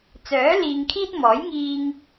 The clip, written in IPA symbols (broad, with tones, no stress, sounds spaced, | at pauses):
t͡s œː˨˥ l iː˧ ŋ kʰ iː˥ t̚ m ɔː˨˥ j ŋ iː˧ ŋ